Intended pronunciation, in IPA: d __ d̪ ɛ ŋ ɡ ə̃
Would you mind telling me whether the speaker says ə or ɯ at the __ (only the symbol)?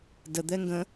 ə